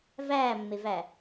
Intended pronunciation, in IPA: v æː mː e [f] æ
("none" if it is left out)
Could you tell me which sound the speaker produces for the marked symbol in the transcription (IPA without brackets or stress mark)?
v